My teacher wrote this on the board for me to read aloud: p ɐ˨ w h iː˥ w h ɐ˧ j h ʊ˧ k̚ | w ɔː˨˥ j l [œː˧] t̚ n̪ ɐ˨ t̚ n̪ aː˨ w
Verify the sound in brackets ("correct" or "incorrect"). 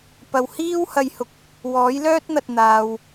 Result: incorrect